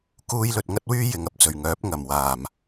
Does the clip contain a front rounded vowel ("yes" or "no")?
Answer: yes